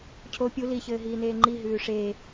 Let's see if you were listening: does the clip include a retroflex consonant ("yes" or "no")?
yes